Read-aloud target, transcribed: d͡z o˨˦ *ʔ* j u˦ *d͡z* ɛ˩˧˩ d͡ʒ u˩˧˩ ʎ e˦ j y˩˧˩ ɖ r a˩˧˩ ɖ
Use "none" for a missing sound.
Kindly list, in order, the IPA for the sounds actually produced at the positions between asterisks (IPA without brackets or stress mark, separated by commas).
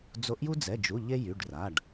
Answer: ʔ, d͡z